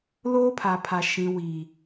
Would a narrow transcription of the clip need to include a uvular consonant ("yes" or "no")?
no